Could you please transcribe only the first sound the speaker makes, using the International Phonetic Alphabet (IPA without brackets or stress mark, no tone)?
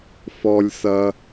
f